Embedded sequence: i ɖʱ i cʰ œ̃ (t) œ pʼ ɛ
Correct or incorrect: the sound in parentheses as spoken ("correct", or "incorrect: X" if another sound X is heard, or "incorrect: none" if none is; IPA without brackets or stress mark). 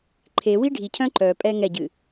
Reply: incorrect: ǃ